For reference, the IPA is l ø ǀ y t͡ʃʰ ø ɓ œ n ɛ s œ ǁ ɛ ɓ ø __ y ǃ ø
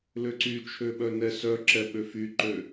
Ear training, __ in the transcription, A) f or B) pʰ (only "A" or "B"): A